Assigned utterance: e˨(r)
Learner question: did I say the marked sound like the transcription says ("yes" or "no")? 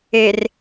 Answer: yes